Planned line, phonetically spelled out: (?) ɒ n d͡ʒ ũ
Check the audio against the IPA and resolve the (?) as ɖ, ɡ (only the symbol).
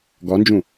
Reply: ɡ